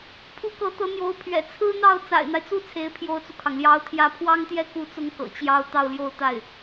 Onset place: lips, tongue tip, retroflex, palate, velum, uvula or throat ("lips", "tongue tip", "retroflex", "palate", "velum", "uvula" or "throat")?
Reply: lips